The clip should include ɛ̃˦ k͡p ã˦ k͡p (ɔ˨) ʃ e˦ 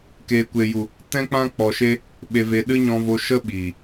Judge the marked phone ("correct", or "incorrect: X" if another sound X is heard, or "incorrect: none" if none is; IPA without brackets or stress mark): incorrect: ɔ˧